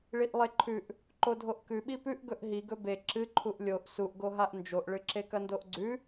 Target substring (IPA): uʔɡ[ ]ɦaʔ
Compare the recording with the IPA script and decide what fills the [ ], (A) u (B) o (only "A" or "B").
B